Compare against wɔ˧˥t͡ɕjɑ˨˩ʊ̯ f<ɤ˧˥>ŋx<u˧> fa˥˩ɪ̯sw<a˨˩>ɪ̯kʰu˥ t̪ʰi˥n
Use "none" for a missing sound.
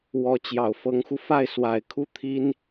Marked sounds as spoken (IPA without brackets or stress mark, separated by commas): ɤ˧˥, u˧, a˨˩